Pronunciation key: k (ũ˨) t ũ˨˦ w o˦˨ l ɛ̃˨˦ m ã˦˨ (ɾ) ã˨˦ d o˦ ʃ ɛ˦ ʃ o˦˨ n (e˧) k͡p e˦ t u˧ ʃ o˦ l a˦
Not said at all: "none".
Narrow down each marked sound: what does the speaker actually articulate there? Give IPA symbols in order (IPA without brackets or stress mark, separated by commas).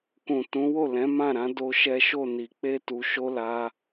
ũ˨, ɾ, i˧